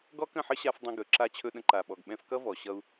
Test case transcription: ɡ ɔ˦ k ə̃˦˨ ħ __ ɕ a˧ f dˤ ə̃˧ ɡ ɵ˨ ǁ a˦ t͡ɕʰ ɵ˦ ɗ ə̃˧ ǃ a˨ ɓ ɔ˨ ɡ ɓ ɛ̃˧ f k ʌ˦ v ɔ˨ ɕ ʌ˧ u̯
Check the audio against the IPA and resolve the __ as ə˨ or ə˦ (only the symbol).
ə˦